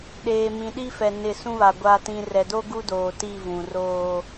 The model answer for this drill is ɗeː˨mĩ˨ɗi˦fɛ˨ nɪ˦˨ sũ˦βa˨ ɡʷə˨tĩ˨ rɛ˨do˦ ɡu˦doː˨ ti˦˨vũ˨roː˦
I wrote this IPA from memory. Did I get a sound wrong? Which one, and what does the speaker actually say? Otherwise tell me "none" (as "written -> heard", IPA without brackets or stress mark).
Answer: ə˨ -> a˨